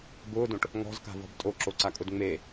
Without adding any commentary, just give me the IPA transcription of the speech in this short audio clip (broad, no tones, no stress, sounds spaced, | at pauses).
b ʊː d õ ʈ | ŋ ɔ̤ z k a̤ v ɔ̤ b tʼ o ǁ o ǀ a kʼ ʊ d ŋ͡m e